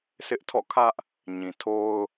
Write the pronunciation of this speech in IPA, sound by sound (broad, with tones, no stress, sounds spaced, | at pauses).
s ɪ˦ ʔ tʰ ɔ̰˦˨ kʰ ä˦ ʔ | ɲ ĩ˨ tʰ o˦ ʊ̯